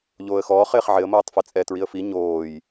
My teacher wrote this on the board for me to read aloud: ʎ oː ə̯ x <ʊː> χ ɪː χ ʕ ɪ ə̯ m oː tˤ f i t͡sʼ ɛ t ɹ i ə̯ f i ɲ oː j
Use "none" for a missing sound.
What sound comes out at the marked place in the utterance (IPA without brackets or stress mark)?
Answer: ɔː